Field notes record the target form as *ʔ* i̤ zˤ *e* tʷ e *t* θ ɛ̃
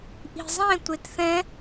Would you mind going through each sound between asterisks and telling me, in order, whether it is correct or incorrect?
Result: correct, incorrect, correct

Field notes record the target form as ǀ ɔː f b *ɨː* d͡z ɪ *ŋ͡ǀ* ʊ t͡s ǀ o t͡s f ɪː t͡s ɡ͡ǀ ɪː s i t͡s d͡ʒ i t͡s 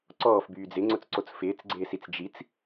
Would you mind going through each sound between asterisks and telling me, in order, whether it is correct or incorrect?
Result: incorrect, correct

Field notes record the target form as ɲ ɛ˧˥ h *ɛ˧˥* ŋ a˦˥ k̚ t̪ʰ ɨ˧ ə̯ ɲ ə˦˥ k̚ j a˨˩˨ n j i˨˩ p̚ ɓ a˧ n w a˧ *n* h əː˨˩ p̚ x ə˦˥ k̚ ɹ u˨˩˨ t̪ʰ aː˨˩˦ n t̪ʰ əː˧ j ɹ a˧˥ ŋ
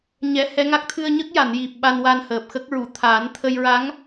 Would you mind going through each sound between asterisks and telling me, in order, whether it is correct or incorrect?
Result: correct, correct

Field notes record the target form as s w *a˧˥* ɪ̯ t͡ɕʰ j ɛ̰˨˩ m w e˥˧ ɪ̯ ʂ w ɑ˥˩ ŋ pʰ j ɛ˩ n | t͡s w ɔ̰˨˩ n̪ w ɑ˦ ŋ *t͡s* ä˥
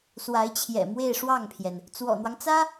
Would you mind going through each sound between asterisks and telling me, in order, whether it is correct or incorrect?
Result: correct, correct

